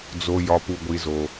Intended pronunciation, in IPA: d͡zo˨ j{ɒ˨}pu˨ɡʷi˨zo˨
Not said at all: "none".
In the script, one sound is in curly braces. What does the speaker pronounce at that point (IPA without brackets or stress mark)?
ɒ˨